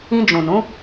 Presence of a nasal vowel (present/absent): present